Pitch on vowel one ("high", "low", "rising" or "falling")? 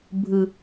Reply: high